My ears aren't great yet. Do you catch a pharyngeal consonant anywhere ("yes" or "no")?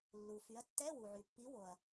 yes